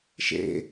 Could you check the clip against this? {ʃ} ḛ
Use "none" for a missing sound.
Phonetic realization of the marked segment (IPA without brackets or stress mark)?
ʃ